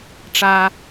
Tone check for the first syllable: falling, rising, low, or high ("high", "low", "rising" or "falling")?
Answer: high